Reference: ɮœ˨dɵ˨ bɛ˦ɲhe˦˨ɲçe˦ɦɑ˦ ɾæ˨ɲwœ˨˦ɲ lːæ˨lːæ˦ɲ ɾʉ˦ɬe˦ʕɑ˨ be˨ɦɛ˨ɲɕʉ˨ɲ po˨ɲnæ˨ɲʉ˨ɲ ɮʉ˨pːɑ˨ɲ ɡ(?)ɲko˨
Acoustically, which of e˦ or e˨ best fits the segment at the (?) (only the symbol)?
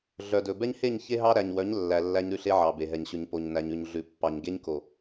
e˦